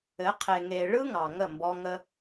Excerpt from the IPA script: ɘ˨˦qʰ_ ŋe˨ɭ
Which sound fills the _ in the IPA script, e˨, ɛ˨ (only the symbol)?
e˨